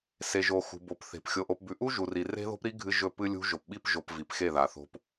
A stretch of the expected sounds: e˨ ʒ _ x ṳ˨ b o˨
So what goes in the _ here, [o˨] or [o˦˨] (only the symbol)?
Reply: o˨